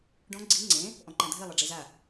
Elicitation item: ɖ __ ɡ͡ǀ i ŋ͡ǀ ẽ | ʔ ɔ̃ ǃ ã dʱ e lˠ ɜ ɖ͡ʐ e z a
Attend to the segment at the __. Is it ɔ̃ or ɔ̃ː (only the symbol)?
ɔ̃